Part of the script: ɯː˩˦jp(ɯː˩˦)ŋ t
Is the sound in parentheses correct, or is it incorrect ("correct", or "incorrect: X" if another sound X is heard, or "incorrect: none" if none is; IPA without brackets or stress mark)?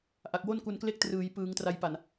correct